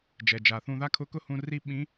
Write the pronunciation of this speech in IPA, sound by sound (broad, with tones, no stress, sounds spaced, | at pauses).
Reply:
d͡ʒ ɛ˩ d͡ʒ a˩ θ ũ˧ ð a˥ kʰ ʊ˧˥ k ʊ˥ h ũ˧ r i˧ ɓ ĩ˧˥